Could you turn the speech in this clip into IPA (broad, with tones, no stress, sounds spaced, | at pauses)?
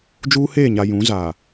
d͡ʒ uː˦ h eː˦˨ ɲ a˨ j ũ˨˦ z aː˨